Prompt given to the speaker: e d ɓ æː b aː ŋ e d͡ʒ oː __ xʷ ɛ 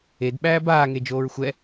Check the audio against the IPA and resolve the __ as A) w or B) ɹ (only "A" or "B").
B